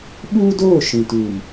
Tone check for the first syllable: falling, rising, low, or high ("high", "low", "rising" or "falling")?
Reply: high